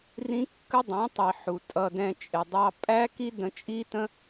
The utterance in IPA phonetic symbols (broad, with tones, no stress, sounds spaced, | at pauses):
r ĩ˦ kː ə˦ dˤ ɛ̃˨˦ tˤ i˨ ħ u˨ tʼ ʌ˧ d ɛ̃˧ t͡ʃʼ ɪ˨ dˤ ɑ˧ pʼ æ˦ k i˦ d ə̃˧ t͡ʃʼ i˦ t ə̃˦